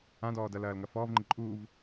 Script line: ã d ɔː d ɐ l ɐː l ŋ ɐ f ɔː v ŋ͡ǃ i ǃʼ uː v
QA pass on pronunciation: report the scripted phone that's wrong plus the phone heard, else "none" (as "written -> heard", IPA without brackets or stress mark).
none